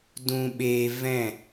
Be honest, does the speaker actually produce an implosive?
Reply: yes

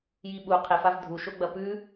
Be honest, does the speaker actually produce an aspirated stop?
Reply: yes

